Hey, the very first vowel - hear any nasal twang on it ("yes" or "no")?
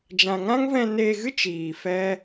yes